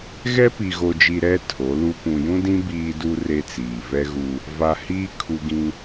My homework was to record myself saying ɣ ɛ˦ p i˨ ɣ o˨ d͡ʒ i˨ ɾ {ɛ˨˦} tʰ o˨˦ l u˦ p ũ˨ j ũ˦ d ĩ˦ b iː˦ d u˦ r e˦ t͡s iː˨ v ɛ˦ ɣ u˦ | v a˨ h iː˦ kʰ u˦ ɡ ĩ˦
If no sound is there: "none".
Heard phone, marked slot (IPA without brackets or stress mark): ɛ˦